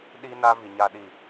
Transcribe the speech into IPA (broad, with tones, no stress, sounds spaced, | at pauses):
ɗ iː˦ n a˦ v i˨ ɲ a˦ ɗ i˦˨